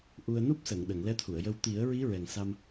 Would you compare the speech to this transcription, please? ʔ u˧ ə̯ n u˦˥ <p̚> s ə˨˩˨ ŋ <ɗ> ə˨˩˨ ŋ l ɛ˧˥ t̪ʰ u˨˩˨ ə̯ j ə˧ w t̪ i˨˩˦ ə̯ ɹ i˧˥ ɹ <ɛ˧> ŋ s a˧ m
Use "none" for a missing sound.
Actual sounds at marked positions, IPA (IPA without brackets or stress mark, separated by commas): p̚, ɗ, ɛ˨˩